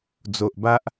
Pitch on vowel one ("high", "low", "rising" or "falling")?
low